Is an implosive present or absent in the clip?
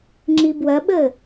present